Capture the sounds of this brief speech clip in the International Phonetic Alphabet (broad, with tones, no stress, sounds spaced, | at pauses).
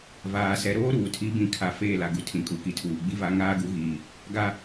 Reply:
v aː˨ s ɛ˨ ɾ oː˦ ɾ uː˨ tʰ i˨˦ b ĩ˨ kʰ a˨ f eː˦˨ l a˨ ɡ u˨ tʰ ĩ˨ kʼ u˨˦ k i˨ tʰ uː˨ ɡ͡b i˦ v a˦ ŋ aː˦ ɡ u˨˦ ɣ iː˨ | ɡ a˦